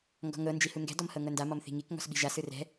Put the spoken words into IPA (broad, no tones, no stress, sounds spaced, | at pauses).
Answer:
ŋ ɡ ɔ̤ ŋ ɤ n d͡ʒ i h u ŋ ɡ ɛ̤ d ɔ m h ɤ ŋ ɤ n d a m ɔ m θ i̤ ŋ i k ŋ ɔ̤ s ɓ i̤ ʒ a s ɯ r ɛ̤